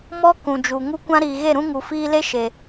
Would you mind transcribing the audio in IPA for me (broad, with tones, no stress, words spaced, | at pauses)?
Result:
mɔ˦ kũ˨d͡ʒu˨ ŋu˦kʷã˦ ɾiː˨ɣe˦˨ɾũ˦ŋu˨ fiː˧le˦ ʃe˨